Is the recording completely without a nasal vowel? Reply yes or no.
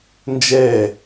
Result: yes